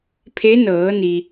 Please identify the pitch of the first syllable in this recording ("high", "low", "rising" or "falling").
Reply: rising